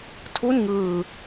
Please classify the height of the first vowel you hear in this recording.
high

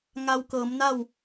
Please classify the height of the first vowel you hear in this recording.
low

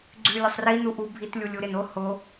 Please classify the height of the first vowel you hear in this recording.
high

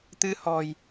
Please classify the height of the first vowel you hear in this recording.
high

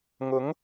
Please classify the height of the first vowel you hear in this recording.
high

